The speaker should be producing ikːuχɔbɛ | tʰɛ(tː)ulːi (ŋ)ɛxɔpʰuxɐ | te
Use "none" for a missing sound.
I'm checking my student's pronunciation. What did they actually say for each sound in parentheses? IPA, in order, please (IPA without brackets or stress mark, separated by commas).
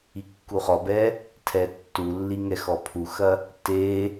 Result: tː, ŋ